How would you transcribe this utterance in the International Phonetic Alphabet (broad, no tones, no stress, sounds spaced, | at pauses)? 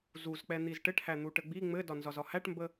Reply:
z u z k͡p ɛ n̪ i z ʈ ɘ ʈ h æ n̪ u ʈ ə ɡ͡b i ŋ͡m ɘ d ɒ n z ɒ z ɒ h æ ʈ m b ə